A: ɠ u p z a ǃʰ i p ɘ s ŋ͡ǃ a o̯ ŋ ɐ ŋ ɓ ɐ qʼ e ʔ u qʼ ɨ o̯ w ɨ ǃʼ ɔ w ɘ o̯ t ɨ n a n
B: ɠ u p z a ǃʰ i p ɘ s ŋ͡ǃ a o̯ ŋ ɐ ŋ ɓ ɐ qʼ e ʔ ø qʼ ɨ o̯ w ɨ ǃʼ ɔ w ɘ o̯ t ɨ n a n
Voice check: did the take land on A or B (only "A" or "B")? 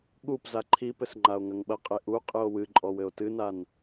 A